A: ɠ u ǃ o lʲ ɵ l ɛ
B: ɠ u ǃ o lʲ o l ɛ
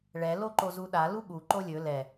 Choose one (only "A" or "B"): A